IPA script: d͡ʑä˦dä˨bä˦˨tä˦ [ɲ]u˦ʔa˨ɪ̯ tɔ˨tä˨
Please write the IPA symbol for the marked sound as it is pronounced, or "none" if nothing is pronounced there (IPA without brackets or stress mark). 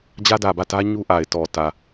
ɲ